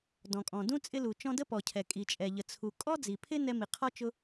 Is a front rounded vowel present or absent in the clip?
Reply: absent